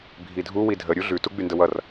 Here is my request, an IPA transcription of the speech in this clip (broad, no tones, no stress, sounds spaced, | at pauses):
bʱ i dʱ u w i dʱ ə ɾʲ u ɮ ʉ t u ɡ͡b y n d ə w ʌ r